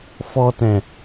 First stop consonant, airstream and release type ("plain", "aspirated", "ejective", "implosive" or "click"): plain